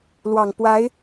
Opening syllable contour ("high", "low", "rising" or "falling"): low